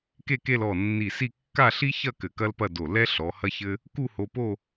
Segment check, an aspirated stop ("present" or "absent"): absent